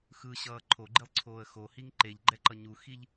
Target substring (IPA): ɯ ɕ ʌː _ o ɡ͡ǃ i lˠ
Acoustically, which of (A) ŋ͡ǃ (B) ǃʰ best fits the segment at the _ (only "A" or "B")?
B